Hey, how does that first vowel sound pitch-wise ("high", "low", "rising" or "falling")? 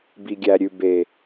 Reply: low